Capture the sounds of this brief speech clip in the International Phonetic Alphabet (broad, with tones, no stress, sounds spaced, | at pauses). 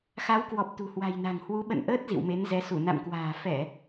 x a˨˦ w k w ɔ˨˩ p̚ t̪ ṳ˨˩ h w a̤˨˩ j n a̤˨˩ ŋ h w u˨˦ ɓ ə̰˧˨ n ʔ əː˦˥ t̚ z ḭ˧˨ w m e˨˦ n z ɛ˨˦ s u˧˩ n a̰˧˨ m k w a̤ː˨˩ f ɛ˧˩˨